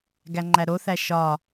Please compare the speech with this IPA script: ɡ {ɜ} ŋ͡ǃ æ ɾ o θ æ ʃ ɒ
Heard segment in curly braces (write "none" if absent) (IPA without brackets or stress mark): æ